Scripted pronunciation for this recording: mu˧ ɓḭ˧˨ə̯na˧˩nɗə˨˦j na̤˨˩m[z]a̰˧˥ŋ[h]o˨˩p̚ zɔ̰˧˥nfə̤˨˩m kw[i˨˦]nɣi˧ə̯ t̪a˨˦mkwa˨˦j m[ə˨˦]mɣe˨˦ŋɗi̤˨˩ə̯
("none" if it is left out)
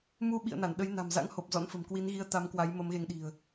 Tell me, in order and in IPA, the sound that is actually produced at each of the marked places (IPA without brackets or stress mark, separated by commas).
z, h, i˨˦, ə˨˦